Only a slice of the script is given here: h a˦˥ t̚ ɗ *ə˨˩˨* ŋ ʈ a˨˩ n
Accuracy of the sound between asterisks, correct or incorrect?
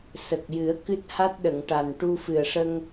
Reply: correct